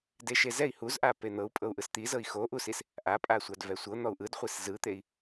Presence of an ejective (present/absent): present